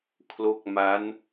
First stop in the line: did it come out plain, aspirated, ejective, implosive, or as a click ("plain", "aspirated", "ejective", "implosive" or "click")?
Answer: aspirated